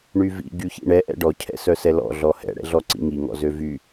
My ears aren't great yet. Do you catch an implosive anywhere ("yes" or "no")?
no